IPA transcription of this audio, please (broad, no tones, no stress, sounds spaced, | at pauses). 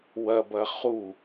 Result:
w ɐ b ɐ χ u